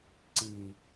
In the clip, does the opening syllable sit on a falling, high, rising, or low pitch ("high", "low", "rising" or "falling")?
low